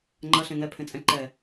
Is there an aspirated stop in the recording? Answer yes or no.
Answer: yes